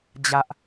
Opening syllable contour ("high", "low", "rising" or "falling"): high